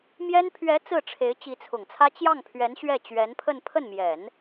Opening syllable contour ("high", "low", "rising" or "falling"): high